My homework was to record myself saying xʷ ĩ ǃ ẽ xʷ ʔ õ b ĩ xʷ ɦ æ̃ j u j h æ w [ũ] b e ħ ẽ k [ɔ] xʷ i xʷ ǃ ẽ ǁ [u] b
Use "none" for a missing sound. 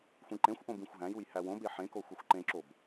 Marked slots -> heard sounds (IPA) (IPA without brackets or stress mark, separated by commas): õ, o, o